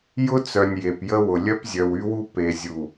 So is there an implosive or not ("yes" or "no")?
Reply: no